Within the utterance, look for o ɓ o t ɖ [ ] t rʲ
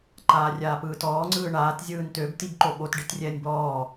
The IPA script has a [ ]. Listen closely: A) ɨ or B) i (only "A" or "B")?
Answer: B